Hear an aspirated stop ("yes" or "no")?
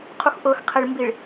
yes